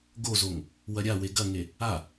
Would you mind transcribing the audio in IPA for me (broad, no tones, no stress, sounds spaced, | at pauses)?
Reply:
ɡ o z o ŋ | w ɐ ɾʲ a w e ɡ ɐ ŋ e | a